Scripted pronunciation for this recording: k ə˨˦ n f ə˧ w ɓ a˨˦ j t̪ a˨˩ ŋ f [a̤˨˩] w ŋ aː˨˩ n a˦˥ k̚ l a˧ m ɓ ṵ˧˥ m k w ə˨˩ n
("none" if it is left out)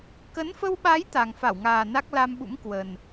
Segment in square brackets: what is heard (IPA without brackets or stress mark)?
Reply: a˧˩